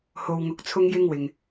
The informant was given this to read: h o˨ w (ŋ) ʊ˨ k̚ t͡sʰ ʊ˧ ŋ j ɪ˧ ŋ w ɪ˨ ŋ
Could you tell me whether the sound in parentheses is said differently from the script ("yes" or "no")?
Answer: no